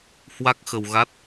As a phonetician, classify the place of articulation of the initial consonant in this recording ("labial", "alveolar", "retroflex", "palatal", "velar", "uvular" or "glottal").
glottal